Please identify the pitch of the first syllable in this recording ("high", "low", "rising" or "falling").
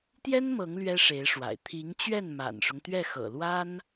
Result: high